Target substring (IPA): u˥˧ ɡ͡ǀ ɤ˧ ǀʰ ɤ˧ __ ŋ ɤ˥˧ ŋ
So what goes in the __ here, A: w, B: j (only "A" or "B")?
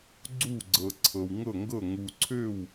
A